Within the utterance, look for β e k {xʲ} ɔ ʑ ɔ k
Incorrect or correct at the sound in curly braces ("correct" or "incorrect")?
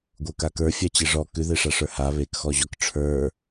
incorrect